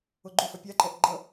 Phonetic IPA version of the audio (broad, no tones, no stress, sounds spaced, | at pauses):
o ɡ͡ǃ u f a pʲ a ǃ ɛ ʔ ɡ͡ǃ ʌ